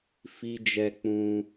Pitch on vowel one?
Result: high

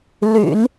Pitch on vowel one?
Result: low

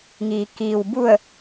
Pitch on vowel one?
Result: low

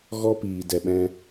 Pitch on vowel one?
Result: high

